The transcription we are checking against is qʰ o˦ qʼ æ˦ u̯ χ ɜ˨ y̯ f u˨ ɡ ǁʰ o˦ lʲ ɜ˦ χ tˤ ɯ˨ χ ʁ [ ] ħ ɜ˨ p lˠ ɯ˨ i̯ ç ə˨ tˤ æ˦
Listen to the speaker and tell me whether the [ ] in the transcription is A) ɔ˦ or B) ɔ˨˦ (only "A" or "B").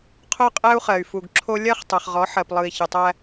B